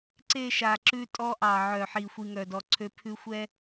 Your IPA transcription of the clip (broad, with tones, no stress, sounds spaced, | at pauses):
ǀ e˦˨ ʃ a˨ ǁ ʉ˧ tʼ ɔ˧ ʔ ɑ˨ ʕ œ˨ ħ i˨ xʷ i˨ ŋ œ˨ d ɔ˨ ǀʰ ø˧ pʰ ʉ˧ xʷ ɛ˦